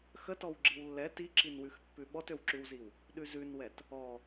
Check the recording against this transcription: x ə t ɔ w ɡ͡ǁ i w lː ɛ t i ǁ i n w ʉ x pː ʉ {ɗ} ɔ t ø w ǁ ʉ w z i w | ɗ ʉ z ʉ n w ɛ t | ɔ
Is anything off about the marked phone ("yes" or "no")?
yes